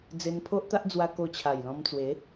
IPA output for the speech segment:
d͡z e˧ n pʰ o˦ ʔ t̪ a˦ ʔ d͡z w a˧ k o˧ t͡ɕʰ a˨˩ j l ɔ̃˧ m t͡s w e˨˦

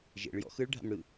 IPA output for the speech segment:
ʒ ḛ ɭ j ɔ̰ x ɯ ɭ ɖʱ a̰ m ɽ ɯ

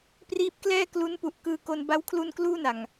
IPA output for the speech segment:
p r iː˦˥ p̚ k l ɛː˥˩ k l u˦˥ n p u˨˩ ʔ k ɯː˧ k o˧ n b a˦˥ w kʰ l u˧ n k l uː˥˩ n a˨˩ ŋ

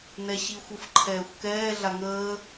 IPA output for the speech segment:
n ɛ ɕ i xʷ ɯ f ǃʰ ɛː xʷ k ɛː ɮ a ŋ əː

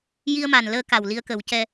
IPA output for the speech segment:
j i˧ ə̯ m a˨˩ n l əː˧ k a˨˩ w l i˧ ə̯ k ə˨˩˦ w c ɛ˧

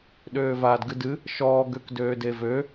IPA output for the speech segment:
ɗ øː v aː d ɡ ɨ d ɨ | ʃ ɔː ɡ ø k d øː d e v ø

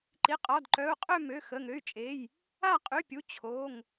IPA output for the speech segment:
ǃ i˩˧˩ qʼ ɔ˩˧˩ d ǃ œ˩˧˩ u̯ qʼ ø˥˨ m ø˩˧˩ x ə˩˧˩ ŋ ø˩˧˩ y̯ t͡ʃʼ e˩˧˩ j | a˥˨ qʼ y˩˧˩ pʲ u˩˧˩ t͡ɕʰ o˩˧˩ ŋ

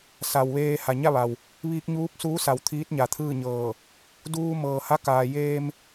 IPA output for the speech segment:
s a˩ w ʋ eː˧ h a˩ ɲ a˥˨ ʋ a˩ w | ʋ iː˧ k̚ ɲ uː˧˥ p̚ s uː˧˥ s a˩ w t̪ʰ iː˧˥ t̚ ɲ a˩ t̪ʰ ɯː˥˨ ɲ ɤː˧˩ | d uː˧ m ɤː˩ h a˧˥ k aː˩ j eː˧ m

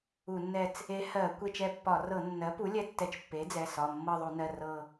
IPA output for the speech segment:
u˧˩˧ nː ɛ˦˨ t͡s | e˧˥ h ɜ˧˩˧ kʷ e˦˨ t͡ʃ ɛ˦˨ pː ɒ˧˩˧ r ɤ˧˩˧ nː ɜ˩˥ p u˩˥ lʲ ɛ˧˥ tː ɛ˧˩˧ t͡ʃ pː e˩˥ d͡z ɛ˩˧˩ s ɒ˩˧˩ mː ɤ˦˨ ðˤ u˧˩˧ n ɜ˩˧˩ r ɤ˦˨

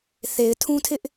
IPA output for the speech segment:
θ e˨ ɪ̯ tʰ ũ˦ tʰ ɪ˦ ʔ

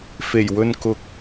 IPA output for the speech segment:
f e˨˩ j w ɵ˧ n k ʊ˨ k̚

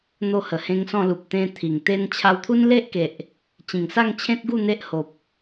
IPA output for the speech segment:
n̪ o˥˧ h ə˨˩ h ẽ˦ ŋ s ɔ̃˥˧ l u˨ p̚ t̪ ẽ˧ t̪ʰ i˨˩ ŋ t̪ e˦ n t͡ɕʰ a˧ w t̪ʰ u˦ n l e˦ ʔ k e˨ ʔ | t͡ɕ ĩ˨˩ ŋ s a˥˧ ŋ t͡ɕʰ ẽ˦ t̚ ɡ u˥˧ n̪ e˦ ʔ h o˨ p̚

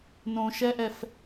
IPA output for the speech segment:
n õ ʃ ɛ ʔ ɛ f

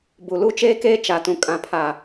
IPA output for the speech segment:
b u˨ l u˦ t͡ʃ eː˦ k eː˦ t͡ʃ a˨ t ũ˨ kʼ ã˨ pʰ a˨

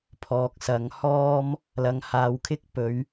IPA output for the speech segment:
pʰ ɔː˨ k̚ s ɐ˨˧ ŋ h ɔː˥ m | l ɐ˨˧ ŋ h aː˨ w kʰ ɪ˥ k̚ p ɵ˨˧ ɥ

